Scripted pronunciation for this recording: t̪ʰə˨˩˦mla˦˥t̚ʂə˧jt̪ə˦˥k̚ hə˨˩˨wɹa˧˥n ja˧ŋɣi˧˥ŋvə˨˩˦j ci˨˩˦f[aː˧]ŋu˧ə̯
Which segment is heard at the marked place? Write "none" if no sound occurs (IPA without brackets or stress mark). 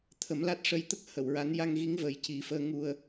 əː˧